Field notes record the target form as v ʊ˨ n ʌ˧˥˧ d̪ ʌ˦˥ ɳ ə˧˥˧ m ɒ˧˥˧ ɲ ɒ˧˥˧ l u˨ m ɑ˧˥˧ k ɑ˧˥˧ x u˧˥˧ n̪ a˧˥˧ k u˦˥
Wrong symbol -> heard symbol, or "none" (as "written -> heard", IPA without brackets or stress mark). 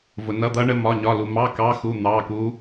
a˧˥˧ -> ɑ˧˥˧